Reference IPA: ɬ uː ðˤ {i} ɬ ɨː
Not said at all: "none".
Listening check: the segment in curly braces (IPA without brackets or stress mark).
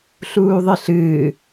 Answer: ɨ